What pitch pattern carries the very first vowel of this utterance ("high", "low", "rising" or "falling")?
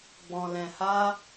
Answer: low